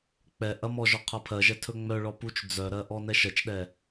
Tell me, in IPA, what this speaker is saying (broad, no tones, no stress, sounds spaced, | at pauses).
k͡p ɛ ʔ ɐ m ɔ ʒ ɔ qʰ ɐ pʰ ɜ ʒ ɛ tʰ ɵ ŋ͡m œ ɭ ɔ p u t͡ʃ d͡z œ ɾ ɜ ʔ ɔ n ɛ ʃ ɜ t͡ʃ ɗ ɛ